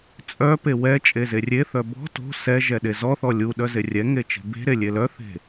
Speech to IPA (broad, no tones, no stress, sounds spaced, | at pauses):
t͡sʼ œ p e w ɛ t͡ʃʼ e z e rʲ e θ œ b ɔ̤ t o̤ s ɛ ʒ ɛ ɗ e z ɔ θ ɔ lʲ u ɗ œ z e rʲ ɛ ŋ e t͡ʃ e̤ b e̤ ɾ e lʲ e l œ θ e̤